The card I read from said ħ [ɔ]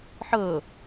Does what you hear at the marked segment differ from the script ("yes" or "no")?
yes